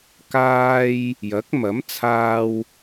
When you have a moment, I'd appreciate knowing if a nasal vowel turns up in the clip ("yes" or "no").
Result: no